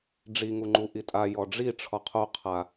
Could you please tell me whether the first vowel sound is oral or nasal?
oral